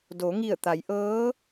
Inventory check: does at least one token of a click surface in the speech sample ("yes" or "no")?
no